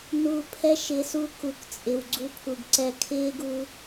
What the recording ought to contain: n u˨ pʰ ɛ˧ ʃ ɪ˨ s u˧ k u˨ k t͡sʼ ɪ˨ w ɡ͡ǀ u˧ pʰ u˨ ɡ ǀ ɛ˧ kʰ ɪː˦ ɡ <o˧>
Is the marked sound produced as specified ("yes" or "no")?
no